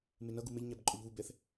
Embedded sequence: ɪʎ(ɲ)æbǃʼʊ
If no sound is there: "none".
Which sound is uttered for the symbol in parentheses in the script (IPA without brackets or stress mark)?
ɲ